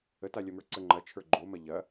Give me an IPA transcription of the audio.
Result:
ə t a lʲ ɐ m ə˞ ǀ ə ŋ͡ǃ ɐ t͡ʃʰ ə˞ ɡ͡ǃ o m ɐ ʎ ɐ

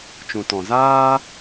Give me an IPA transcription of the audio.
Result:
t͡ʃ ũ˨ t ɔ̃˨ z aː˦

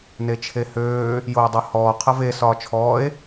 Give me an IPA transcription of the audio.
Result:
n e t͡ʃʰ e h øː | j oː dˤ o h ɔː qʰ ɐ v e s ɒː t͡ʃʰ ɔː e̯

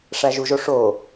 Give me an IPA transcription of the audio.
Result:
ʂ æ ʒ u ʒ o ʂ o

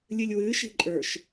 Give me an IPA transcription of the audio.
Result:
lʲ ɨ lʲ w ɨ ʃ i̤ ǃʼ ə˞ ʃ

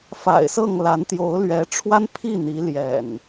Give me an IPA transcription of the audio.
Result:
f a̰˨˩ ɪ̯ s ɤ˥˨ ŋ l a˨˦ n t̪ j o˨˦ ʊ̯ l ɥ ɛ˨˦ ʈ͡ʂʰ w a˦ n pʰ i˥˨ n̪ i˨˦ l j ɛ̰˨˩ n

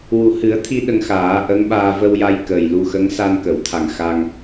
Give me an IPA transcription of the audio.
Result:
w u˨˩ h ɨ˨˩˦ ə̯ t̪ʰ i˧ ɗ ə˧ ŋ x aː˨˩˦ ʔ ə˧˥ ŋ ɓ aː˧ v ə˧ w j a˧ j k ə˨˩ j l u˧ x ə˧˥ ŋ s a˧ n k ə˨˩˨ w t̪ʰ a˨˩ ŋ x a˧ ŋ

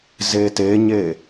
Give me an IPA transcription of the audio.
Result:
z e t e ɲ e

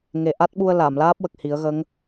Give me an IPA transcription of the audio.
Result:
ŋ e˨˩ ʔ a˦˥ t̚ ɓ u˧ ə̯ l a˨˩˨ m l aː˦˥ p̚ w ə˨˩ k̚ h i˨˩˦ ə̯ ɣ ə˧˥ ŋ

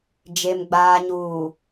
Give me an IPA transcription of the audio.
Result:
d͡ʒ e˨ m ɡ͡b aː˨ ɲ uː˨

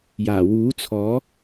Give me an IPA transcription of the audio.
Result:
j aː˨˩ w uː˨˥ t͡sʰ ɔː˨˥

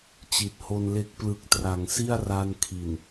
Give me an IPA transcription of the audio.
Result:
t͡ɕ i˨˩ t̚ h o˧ n l e˦˥ k̚ p l ɯ˨˩ k̚ t r a˩˦ ŋ s i˥˩ a̯ r a˧ n kʰ i˨˩ n

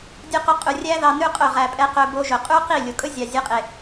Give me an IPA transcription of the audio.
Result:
dʲ u˧ q ɵ˧ qʼ ʉ˨ rʲ æ˦ ð ɑ˧ n ʉ˦ qʼ ɵ˦˨ ʁ æ˨ pʼ ɛ˧ q ɵ˧ b o˧ ʒ ɵ˨ qʼ ʉ˦ q i˦˨ lʲ o˨ kʼ ɵ˦ zʲ ɑ˨ zʲ ɛ˧ qʼ e˨

